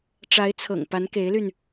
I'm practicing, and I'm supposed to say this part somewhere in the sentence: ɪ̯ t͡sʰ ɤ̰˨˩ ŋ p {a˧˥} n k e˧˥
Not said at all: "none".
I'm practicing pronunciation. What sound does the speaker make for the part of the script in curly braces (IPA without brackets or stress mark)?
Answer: a˧˥